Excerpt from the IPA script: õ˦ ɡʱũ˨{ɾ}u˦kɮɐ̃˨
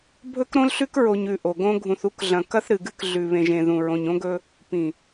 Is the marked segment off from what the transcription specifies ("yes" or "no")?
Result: yes